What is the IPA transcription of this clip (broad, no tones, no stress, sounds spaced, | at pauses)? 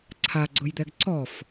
ǀʰ a ɡ͡ǀ ʊ j d̪ ɛ ɡ ǀ ɔ f